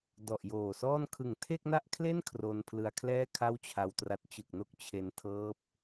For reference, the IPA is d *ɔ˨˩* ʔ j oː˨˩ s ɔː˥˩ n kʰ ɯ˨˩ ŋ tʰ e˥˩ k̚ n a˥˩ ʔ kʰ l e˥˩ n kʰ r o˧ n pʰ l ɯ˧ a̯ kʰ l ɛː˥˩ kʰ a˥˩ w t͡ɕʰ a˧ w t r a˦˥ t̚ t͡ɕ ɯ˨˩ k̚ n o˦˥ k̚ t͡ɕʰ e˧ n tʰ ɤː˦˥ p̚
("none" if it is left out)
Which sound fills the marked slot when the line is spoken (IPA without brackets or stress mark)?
ɔ˨˩